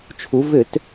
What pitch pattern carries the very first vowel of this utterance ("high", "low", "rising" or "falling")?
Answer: rising